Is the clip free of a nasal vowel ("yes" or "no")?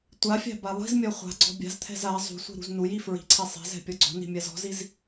yes